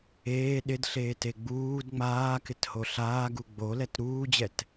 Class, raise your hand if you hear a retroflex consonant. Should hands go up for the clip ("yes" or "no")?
no